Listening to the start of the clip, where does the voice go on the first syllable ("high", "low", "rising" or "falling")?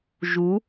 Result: rising